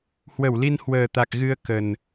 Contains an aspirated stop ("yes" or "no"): no